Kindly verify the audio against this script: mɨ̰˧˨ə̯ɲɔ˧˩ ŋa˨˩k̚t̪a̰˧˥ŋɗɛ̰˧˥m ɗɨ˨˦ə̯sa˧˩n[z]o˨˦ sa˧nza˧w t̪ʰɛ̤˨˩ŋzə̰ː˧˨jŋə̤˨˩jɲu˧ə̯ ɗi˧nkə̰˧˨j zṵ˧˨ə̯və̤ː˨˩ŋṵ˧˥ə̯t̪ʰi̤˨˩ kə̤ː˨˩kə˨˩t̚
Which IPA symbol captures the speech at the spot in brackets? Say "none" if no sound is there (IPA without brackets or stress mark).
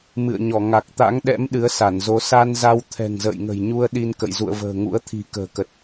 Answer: z